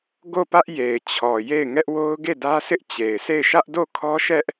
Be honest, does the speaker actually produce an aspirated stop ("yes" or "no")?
yes